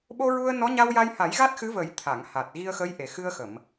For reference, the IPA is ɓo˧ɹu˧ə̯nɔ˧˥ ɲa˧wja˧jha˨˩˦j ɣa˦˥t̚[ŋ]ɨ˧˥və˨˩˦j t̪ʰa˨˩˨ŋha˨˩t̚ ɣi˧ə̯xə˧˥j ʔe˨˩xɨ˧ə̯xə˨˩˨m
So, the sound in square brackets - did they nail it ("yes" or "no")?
no